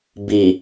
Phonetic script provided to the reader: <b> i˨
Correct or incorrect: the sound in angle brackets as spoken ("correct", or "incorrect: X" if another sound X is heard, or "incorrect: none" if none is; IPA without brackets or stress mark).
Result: correct